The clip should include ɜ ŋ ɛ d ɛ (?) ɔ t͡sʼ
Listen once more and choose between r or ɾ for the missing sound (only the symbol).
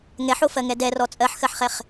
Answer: r